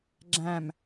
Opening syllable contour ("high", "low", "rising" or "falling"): low